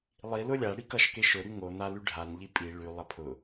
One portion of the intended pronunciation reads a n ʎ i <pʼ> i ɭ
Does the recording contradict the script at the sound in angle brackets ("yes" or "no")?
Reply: no